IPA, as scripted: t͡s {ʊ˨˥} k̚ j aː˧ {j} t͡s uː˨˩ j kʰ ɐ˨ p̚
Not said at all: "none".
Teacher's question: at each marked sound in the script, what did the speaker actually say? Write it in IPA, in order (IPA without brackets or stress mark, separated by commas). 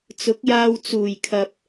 ʊ˨˥, w